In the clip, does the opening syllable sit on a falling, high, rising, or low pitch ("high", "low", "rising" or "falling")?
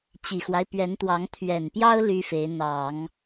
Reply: low